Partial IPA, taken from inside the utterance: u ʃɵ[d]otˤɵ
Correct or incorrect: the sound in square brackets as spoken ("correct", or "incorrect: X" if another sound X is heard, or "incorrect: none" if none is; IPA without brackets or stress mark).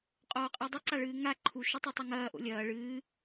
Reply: incorrect: tˤ